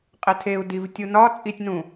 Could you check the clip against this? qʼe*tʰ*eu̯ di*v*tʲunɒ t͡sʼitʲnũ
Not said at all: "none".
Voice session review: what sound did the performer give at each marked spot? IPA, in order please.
tʰ, v

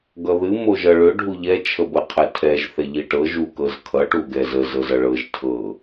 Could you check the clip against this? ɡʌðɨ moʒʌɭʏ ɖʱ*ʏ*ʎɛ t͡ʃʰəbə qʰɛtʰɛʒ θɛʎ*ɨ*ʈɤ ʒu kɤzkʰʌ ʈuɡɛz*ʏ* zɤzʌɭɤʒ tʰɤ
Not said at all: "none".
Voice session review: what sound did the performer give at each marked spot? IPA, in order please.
u, i, ə

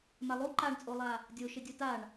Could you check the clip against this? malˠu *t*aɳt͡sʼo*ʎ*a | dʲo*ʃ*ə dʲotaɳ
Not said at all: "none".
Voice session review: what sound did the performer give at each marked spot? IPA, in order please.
ǃ, lˠ, ʃ

